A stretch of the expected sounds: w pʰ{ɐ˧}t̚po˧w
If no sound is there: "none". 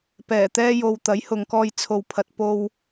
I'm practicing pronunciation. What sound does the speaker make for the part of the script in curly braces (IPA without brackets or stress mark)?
ɐ˨